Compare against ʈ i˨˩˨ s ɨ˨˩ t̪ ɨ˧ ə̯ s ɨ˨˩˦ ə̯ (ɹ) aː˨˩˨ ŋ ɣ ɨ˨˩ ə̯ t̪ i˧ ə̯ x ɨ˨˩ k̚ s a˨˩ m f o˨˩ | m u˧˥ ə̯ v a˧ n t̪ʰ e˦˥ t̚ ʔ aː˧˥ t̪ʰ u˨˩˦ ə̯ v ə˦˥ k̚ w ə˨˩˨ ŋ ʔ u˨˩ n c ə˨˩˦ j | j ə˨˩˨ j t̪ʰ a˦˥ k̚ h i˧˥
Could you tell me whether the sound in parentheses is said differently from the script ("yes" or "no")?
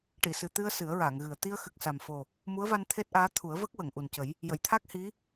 no